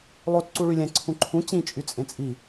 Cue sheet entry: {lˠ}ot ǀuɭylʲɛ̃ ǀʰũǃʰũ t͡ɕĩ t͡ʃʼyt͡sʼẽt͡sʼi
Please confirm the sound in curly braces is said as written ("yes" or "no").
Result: yes